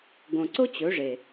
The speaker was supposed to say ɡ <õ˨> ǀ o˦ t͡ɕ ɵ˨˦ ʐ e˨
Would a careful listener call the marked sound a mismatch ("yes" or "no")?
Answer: no